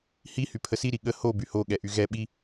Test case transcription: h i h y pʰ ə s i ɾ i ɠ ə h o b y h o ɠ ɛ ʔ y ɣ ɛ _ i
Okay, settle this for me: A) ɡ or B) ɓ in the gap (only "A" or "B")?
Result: B